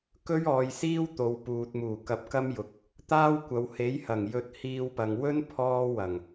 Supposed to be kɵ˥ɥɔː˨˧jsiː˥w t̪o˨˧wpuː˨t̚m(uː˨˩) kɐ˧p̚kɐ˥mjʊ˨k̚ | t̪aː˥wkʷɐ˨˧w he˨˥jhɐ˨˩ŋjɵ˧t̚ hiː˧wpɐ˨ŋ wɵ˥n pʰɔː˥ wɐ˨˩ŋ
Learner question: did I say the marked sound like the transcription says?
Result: yes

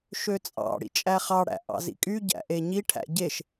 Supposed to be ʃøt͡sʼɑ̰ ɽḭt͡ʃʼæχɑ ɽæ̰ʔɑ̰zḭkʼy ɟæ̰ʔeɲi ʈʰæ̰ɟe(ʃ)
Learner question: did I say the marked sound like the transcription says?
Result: yes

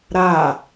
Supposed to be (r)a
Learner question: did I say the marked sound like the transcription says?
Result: no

